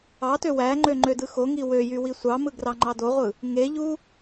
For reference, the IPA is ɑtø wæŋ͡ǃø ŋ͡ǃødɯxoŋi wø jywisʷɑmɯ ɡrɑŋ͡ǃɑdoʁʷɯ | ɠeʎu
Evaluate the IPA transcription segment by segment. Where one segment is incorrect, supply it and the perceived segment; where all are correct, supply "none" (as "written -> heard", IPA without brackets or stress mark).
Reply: ɠ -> ŋ